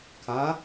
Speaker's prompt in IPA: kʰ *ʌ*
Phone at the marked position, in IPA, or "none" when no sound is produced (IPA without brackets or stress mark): a